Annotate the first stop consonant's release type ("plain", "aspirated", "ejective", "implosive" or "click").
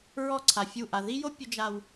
click